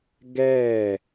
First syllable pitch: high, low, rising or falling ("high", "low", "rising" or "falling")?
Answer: falling